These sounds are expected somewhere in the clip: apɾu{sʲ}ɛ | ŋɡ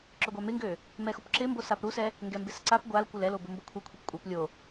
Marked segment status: incorrect: s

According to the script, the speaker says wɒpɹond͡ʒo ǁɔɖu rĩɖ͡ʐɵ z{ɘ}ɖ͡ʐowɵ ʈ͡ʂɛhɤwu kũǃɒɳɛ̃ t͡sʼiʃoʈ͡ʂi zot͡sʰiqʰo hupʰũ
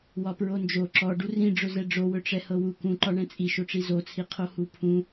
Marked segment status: incorrect: ɛ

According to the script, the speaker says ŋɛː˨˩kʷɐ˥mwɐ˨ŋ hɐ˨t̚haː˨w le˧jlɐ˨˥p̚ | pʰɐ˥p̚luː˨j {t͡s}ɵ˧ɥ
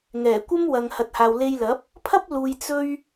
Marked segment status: correct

